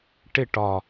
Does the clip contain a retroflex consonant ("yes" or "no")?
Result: yes